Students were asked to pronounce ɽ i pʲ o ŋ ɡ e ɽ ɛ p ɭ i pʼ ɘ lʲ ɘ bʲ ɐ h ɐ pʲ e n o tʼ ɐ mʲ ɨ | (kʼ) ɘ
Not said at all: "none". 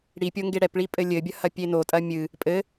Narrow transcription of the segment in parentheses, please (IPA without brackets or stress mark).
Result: pʼ